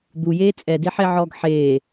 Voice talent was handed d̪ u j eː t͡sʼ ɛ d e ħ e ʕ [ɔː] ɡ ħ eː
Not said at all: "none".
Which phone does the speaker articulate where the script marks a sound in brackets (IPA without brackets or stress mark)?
ɔː